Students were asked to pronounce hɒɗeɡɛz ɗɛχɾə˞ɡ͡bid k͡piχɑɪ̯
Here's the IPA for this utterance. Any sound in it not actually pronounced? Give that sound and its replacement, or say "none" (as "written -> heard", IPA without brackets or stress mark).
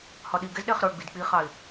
e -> i